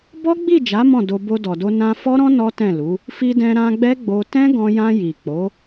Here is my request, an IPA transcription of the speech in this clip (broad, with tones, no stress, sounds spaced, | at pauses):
b ɔ˦ ɡ͡b i˦˨ d͡ʒ a˨˦ m ɔ̃˦˨ d o˧ b o˧ d ɔ˨ d o˧ n ã˧ f ɔ˦ ɾ ɔ̃˦ n ɔ˦ t ɛ̃˦˨ l u˨˦ | f i˧ d ɛ̃˧ ɾ ã˧ ɡ͡b ɛ˦ ɡ͡b o˧ t ɛ̃˦ ɡ ɔ̃˧ j ã˧ j i˨ k͡p o˨˦